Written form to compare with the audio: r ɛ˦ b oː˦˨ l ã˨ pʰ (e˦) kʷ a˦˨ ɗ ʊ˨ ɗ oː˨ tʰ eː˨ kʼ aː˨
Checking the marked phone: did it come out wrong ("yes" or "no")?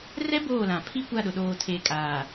yes